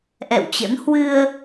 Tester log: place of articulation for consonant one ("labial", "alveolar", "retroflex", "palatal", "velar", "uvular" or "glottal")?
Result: glottal